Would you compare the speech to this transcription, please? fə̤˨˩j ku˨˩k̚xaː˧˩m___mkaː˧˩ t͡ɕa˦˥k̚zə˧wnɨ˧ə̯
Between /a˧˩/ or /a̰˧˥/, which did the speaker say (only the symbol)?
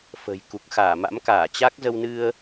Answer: a̰˧˥